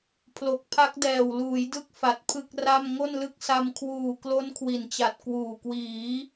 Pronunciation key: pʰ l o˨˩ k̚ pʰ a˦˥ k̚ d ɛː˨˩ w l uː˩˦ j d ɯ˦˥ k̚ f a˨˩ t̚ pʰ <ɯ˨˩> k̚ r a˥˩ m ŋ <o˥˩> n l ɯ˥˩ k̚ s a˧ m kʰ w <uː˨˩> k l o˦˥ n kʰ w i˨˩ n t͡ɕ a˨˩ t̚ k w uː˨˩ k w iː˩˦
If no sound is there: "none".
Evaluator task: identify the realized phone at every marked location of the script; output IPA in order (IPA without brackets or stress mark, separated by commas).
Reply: ɯ˥˩, o˥˩, uː˨˩